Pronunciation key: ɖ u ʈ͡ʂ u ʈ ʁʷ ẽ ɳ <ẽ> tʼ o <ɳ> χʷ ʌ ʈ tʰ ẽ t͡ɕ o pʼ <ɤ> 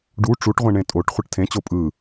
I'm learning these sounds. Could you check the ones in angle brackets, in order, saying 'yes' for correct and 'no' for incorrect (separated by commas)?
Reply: yes, no, no